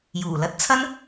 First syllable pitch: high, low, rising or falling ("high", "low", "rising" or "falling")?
low